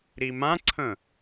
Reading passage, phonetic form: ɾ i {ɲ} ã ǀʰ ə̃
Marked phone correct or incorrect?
incorrect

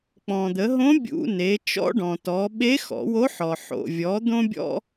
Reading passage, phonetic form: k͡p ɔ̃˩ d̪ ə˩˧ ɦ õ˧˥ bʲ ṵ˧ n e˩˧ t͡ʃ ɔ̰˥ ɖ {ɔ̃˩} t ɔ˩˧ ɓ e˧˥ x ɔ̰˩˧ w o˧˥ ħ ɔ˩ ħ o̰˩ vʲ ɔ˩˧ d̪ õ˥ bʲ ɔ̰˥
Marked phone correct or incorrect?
correct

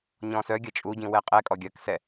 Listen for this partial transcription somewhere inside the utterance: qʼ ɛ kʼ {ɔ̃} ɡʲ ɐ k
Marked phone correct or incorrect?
incorrect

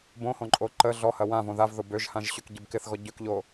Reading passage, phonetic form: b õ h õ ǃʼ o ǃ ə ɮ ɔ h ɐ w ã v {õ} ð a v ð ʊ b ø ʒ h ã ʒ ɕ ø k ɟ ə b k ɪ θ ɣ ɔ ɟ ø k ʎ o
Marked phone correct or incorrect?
correct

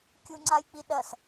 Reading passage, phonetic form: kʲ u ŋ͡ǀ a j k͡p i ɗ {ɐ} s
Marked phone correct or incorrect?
correct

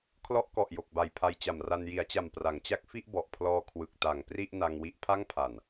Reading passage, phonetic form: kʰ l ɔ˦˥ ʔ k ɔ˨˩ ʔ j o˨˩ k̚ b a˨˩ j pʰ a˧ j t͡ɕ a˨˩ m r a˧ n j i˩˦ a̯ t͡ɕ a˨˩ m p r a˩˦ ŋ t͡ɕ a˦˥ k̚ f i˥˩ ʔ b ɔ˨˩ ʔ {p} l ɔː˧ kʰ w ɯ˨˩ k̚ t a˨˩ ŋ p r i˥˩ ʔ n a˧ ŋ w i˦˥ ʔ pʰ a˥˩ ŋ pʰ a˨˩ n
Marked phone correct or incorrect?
incorrect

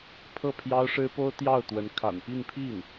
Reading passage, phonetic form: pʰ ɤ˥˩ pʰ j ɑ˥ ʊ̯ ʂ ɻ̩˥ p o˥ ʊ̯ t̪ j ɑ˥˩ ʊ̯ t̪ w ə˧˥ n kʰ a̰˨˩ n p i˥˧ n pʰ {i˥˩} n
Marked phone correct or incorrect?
correct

